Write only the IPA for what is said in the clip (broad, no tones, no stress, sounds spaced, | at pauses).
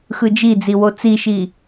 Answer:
x ɯ d͡ʒ i d͡z i w o t͡s i ʃ i